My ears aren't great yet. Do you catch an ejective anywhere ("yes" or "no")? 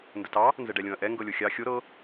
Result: no